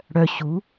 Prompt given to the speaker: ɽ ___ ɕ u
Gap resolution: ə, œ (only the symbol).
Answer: œ